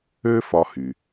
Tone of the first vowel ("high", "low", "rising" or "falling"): high